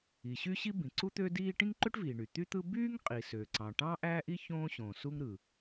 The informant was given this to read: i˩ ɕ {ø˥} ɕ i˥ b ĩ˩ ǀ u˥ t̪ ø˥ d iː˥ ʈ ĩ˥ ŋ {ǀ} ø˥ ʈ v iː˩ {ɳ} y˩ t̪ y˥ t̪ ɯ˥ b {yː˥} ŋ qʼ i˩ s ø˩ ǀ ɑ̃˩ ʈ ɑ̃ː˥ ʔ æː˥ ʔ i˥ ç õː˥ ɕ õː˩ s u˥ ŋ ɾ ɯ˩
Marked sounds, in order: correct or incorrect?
incorrect: y˥, incorrect: ǃ, correct, correct

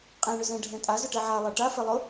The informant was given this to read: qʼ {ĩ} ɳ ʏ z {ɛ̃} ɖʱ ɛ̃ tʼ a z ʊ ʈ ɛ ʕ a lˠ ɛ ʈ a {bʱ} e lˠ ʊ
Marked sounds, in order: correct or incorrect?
incorrect: ẽ, correct, incorrect: f

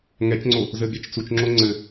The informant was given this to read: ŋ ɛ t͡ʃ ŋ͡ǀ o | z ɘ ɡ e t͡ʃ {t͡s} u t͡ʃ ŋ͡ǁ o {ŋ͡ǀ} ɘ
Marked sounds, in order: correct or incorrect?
correct, correct

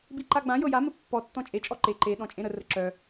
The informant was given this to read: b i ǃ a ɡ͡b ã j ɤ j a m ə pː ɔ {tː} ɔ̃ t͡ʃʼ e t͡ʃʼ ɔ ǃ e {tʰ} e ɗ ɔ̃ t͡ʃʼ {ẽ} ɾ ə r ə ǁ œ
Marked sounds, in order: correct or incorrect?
correct, incorrect: ǃ, correct

